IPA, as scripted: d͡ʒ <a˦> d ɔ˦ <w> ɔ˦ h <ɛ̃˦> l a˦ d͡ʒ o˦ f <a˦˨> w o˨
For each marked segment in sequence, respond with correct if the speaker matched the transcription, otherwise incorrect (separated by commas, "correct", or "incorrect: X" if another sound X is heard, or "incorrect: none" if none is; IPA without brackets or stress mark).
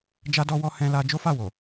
correct, correct, correct, correct